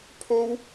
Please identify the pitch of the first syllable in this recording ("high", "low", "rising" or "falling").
high